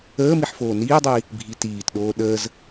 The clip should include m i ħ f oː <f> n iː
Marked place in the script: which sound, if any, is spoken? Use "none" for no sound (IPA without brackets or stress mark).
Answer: none